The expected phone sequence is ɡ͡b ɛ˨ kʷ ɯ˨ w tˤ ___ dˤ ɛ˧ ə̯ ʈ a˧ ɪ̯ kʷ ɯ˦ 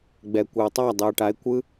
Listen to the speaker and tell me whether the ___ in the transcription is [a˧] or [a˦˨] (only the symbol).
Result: a˦˨